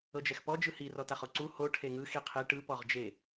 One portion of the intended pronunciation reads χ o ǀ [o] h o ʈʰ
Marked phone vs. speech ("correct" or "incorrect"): incorrect